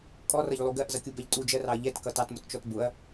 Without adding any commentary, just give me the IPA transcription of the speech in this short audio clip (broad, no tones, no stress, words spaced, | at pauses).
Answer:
kʼɔrʌʎlˠu ɡɜʔzʌkʲubɛʎ tʼud͡ʒɜrɑɐ̯ ʎɛtkʌ tɑtmʊtt͡ʃɔt bʊɐ̯